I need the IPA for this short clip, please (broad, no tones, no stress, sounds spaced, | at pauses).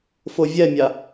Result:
f o vʲ ɛ mʲ a